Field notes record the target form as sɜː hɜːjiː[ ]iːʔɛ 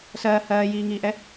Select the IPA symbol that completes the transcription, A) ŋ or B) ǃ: A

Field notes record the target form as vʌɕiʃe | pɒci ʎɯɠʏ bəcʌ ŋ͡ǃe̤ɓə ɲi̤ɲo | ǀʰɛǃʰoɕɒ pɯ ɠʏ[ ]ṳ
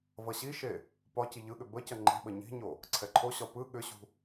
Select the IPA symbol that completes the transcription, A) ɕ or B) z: A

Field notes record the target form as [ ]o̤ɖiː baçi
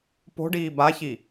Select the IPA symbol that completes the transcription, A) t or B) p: B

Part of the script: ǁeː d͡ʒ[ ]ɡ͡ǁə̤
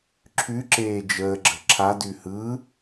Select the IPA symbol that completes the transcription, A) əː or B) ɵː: A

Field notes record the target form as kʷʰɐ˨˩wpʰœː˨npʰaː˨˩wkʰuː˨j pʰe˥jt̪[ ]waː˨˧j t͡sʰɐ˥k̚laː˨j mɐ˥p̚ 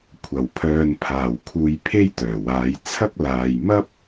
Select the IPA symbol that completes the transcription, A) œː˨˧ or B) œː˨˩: B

